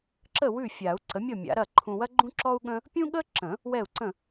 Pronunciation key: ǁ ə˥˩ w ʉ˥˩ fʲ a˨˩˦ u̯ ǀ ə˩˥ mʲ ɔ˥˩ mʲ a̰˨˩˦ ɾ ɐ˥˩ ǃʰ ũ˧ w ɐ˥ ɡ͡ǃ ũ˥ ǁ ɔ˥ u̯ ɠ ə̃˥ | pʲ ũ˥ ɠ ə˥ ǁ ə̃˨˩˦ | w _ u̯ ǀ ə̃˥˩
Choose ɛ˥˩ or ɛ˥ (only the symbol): ɛ˥˩